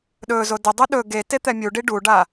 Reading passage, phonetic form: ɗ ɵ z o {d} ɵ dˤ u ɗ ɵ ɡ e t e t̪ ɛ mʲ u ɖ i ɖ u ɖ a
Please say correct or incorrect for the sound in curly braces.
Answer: correct